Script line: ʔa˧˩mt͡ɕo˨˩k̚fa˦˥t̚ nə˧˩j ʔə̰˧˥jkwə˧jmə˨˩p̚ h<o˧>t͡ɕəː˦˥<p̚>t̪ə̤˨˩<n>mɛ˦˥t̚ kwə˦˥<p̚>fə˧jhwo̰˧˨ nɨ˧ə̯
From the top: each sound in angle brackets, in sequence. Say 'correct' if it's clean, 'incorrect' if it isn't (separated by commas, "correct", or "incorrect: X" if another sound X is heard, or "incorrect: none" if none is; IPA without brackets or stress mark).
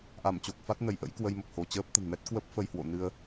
incorrect: o˧˩, correct, correct, correct